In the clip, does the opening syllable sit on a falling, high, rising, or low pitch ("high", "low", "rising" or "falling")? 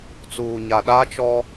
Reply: low